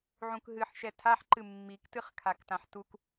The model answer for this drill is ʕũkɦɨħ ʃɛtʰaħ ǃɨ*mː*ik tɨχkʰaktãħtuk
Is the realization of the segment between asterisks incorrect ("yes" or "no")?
no